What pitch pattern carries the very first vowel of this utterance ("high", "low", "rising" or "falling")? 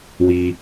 high